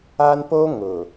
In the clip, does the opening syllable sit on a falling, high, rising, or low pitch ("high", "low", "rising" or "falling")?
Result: high